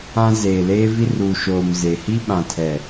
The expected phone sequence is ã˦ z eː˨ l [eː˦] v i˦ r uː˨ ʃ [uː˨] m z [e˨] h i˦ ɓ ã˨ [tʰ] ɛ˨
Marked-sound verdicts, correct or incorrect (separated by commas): correct, incorrect, correct, correct